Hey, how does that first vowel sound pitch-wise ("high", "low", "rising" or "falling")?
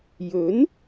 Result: rising